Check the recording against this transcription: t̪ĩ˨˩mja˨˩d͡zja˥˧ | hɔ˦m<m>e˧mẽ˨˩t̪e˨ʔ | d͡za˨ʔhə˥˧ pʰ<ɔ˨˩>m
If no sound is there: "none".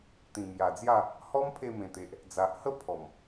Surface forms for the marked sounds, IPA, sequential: pʰ, ɔ˨˩

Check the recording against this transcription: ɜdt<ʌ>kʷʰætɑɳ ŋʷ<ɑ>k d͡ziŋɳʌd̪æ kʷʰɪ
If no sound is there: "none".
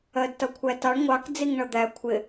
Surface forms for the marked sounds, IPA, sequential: ʌ, ɑ

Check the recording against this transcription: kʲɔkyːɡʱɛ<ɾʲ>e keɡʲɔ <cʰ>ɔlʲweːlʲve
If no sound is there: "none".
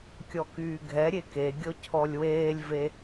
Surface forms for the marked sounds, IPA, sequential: ɾʲ, cʰ

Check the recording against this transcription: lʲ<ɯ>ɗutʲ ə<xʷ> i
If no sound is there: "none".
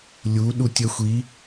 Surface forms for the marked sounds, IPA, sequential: u, xʷ

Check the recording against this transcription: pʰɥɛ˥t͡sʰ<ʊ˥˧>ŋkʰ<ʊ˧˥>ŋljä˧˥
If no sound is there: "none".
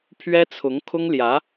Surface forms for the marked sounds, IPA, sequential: ʊ˧˥, ʊ˥

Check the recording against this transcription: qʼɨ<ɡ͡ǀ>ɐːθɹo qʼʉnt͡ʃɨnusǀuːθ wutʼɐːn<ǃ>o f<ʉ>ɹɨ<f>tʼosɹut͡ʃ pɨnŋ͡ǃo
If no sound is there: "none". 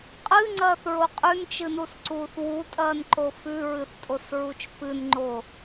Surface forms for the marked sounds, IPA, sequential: ŋ͡ǀ, ǃ, ʉ, θ

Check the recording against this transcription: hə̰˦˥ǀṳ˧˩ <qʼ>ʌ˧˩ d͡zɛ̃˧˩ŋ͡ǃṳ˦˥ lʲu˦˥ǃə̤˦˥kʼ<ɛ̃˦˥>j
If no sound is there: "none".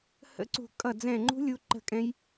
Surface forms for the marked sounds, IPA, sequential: kʼ, ɛ̃˦˥

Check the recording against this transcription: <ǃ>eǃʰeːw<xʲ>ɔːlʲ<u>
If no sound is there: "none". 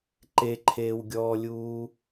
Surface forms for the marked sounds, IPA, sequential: ǃ, ɡʲ, uː

